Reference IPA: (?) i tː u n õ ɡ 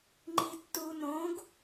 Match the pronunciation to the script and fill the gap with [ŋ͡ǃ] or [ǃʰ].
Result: ŋ͡ǃ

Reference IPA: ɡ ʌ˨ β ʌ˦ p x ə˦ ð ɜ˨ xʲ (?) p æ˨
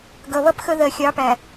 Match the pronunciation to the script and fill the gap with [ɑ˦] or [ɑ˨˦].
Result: ɑ˨˦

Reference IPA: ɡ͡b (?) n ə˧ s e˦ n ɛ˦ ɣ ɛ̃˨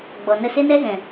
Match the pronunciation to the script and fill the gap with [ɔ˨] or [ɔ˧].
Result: ɔ˨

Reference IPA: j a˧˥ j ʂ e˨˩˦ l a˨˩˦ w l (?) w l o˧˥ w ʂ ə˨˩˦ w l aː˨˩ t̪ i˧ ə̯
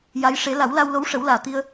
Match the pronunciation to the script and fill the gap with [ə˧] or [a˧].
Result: a˧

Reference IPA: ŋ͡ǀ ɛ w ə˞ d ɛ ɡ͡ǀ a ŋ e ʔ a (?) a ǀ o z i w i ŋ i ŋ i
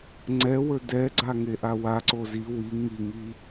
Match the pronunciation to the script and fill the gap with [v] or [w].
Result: w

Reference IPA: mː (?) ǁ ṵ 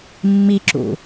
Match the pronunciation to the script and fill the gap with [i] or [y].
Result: i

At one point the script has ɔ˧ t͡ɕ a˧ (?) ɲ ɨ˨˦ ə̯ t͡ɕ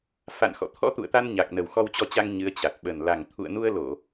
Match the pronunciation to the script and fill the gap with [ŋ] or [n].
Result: ŋ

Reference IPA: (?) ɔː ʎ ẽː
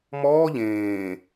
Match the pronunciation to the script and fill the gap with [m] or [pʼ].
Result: m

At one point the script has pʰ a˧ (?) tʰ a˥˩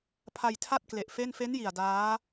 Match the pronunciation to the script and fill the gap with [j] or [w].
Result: j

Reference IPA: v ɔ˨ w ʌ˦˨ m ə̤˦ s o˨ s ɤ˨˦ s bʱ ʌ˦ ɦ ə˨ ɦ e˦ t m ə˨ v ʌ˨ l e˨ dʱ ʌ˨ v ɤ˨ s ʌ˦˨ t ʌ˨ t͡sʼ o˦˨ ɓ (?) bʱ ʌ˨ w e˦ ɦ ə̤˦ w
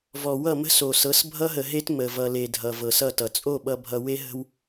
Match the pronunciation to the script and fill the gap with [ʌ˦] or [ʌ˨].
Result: ʌ˨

